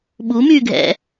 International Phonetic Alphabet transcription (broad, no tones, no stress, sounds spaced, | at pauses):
ɓ u m yː ɡʱ ɛ̰